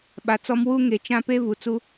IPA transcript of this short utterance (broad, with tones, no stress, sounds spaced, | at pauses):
ɓ a˨ t͡s ɔ˦ m w u˦ ŋ e˨ t͡ʃ ã˦ p e˦ v u˨ t͡s u˦